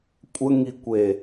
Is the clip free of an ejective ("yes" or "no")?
no